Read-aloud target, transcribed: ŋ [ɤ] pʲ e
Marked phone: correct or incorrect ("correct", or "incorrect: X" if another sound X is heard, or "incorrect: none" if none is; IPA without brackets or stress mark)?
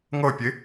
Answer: correct